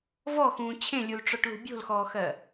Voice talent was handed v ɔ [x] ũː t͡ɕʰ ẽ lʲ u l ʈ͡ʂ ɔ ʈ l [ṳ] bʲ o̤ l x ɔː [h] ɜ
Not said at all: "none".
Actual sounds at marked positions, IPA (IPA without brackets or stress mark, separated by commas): x, ṳ, x